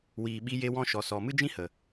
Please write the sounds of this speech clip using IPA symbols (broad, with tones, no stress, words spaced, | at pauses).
wiː˨ɓi˧je˧ wɔ̃˧ʃɔ˨sɔ˨ mɨ˦d͡ʒĩ˦hə˨